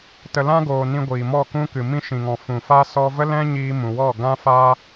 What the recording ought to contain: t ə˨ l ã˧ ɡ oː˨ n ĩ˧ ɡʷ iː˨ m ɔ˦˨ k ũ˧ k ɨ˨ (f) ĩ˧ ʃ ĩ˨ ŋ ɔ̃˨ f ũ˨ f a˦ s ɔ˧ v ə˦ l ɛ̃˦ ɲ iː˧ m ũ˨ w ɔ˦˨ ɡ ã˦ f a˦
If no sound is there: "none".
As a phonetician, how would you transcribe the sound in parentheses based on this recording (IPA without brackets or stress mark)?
m